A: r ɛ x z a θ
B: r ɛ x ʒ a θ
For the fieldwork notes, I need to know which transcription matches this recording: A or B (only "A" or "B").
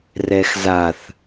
A